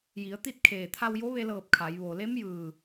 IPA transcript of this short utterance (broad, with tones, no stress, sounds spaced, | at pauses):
j i˩˧ ə̯ t̪ i˥˨ t̚ kʰ eː˧˩ t̪ʰ a˧ w j o˧˥ ʋ e˧ l ɤː˧˩ p̚ kʰ a˩˧ j ʋ o˩ l e˧˥ m j ɯː˧˩